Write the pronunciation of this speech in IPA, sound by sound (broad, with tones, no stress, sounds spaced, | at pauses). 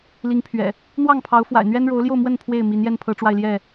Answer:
l i˨˦ ŋ pʰ ɥ ɛ̰˨˩ | n̪ w ɑ˥˨ ŋ pʰ ɑ˨˦ ʊ̯ f w a̰˨˩ ɪ̯ n̪ ɥ ɛ˦ n ɻ o˨˦ ʊ̯ l j o˥˨ ʊ̯ m w ə˥˨ n pʰ w e˥˨ ɪ̯ m i˨˦ n j ɛ˦ n pʰ ɤ˨˦ ʈ͡ʂ w a˧ ɪ̯ l j ɛ˥˨